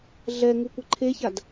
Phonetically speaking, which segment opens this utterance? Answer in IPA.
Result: ɮ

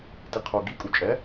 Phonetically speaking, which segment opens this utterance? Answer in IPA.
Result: t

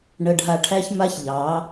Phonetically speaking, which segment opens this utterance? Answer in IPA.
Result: ɳ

